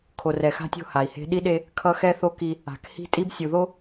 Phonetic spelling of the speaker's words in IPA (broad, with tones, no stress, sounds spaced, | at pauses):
kʰ o˨ r ɛ˨ x a̤˦ tʲ o̤˦˨ h a˨ i̯ h e̤˦ ɗ i˦ ɗ e˦ | kʰ ʌ˦ x ɛ˦ θ o˦ k i˦ | a̤˨ k h i̤˦ tʼ i˦ b sʲ u˨ ð o˦